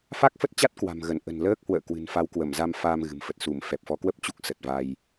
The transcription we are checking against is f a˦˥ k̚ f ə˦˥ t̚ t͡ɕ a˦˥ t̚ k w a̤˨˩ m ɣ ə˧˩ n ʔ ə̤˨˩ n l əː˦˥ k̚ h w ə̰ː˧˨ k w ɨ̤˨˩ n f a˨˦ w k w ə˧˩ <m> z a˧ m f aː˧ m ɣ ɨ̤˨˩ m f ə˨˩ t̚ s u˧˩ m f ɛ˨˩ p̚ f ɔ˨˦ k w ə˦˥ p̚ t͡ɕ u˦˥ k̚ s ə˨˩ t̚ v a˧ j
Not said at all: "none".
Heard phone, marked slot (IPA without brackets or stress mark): m